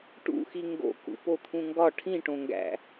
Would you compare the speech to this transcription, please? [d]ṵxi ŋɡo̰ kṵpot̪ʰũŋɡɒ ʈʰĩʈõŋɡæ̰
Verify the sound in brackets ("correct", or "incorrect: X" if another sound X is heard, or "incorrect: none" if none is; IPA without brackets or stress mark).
incorrect: ʈ